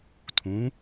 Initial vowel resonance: nasal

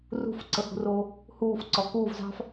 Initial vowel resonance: oral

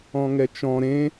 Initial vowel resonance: nasal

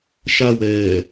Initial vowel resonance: oral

